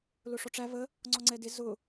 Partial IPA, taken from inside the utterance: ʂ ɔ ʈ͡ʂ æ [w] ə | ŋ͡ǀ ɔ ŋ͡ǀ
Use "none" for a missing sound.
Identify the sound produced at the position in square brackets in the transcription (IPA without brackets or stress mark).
β